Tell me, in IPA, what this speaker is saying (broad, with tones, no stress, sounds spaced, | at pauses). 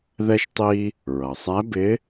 ð ɛ˧ ʃ tˤ i˧ | ɹ ʌ˩ sˤ æ˧˥ b ɪ˧˥